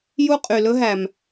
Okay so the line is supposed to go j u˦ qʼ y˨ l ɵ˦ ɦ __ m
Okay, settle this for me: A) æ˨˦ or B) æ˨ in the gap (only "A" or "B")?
B